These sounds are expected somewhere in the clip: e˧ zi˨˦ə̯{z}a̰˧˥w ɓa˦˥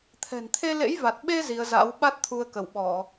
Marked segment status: correct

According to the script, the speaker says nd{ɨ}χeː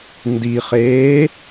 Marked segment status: incorrect: i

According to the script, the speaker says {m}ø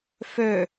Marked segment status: incorrect: f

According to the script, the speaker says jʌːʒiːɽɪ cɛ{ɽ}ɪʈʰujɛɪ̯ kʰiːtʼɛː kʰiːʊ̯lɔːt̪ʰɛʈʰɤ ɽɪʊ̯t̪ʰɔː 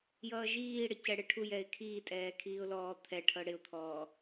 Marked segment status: correct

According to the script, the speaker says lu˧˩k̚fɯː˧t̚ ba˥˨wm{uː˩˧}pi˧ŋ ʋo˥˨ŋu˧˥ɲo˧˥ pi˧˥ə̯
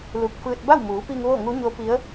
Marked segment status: correct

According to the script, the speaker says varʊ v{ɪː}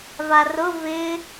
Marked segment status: correct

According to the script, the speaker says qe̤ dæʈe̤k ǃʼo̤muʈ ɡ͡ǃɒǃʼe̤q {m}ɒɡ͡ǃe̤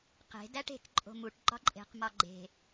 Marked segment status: correct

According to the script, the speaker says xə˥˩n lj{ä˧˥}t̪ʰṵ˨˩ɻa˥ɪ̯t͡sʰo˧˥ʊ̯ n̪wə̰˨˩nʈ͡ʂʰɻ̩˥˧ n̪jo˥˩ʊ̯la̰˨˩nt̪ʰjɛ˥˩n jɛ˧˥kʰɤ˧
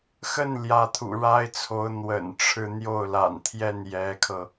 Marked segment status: correct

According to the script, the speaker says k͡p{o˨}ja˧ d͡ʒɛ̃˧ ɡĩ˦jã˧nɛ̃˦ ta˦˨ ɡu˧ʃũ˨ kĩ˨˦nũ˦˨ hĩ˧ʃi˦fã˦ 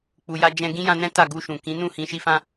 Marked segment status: incorrect: u˨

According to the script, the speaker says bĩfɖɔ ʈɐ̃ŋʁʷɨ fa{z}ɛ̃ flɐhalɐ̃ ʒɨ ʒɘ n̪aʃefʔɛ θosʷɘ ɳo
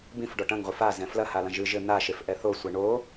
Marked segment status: correct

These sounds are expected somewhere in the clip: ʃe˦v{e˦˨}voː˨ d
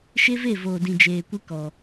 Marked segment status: correct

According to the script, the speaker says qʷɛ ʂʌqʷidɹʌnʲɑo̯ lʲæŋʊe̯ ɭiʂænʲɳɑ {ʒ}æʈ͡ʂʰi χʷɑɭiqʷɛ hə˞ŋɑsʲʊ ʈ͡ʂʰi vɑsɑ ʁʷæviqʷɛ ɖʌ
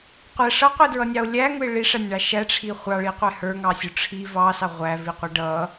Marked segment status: incorrect: ʃ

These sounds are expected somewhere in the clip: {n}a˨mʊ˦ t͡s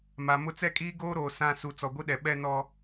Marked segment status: incorrect: m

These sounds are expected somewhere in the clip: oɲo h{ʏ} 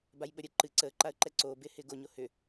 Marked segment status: correct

